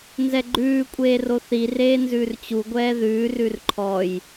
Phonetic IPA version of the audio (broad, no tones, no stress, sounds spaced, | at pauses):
n z ɛ ɡ͡ǃ ʉː kʷʼ eː r o θ i r eː n z ʉː r t͡ɕ u ɡʷ ɛː ð ʉː r ʉ r ǃʰ ɔ j